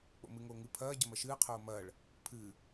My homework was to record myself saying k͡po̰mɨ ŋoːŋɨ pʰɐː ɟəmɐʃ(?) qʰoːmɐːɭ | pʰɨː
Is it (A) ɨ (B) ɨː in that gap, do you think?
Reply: B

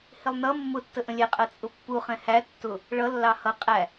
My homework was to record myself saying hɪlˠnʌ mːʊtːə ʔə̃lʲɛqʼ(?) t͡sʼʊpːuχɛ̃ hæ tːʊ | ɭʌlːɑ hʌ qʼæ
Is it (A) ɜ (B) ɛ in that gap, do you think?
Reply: A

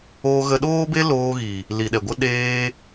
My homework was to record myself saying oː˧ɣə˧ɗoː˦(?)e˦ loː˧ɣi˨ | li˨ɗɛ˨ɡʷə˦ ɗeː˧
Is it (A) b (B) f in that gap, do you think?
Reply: A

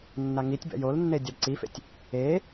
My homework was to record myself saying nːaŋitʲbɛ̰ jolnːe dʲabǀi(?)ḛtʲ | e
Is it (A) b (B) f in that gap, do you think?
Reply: B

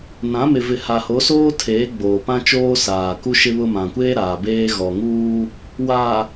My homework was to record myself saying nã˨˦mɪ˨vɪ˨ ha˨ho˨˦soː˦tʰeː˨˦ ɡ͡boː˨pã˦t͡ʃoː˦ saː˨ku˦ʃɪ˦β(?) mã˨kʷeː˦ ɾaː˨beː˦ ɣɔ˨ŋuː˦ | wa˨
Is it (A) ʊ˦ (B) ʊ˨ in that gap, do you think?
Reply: A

